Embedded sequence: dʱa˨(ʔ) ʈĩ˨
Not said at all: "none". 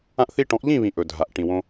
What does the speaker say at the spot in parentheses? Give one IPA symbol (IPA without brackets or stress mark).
ʔ